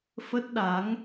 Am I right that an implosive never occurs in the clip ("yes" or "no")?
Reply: no